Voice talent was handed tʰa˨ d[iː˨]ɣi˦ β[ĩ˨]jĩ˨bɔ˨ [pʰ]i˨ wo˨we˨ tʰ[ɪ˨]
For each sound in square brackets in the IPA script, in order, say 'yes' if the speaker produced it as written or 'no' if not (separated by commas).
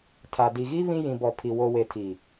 no, no, yes, no